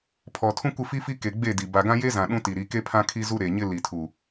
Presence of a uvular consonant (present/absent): absent